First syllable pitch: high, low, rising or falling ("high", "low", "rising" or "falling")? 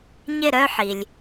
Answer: falling